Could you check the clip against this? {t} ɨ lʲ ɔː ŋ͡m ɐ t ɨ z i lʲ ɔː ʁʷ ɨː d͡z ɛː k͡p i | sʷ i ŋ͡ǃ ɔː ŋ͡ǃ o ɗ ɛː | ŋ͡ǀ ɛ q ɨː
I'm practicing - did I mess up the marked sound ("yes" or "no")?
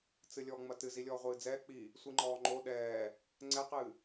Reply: yes